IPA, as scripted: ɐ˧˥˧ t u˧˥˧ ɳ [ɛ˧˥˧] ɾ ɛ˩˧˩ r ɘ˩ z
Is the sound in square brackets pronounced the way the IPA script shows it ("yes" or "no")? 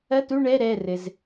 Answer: yes